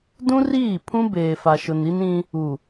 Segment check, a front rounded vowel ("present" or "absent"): absent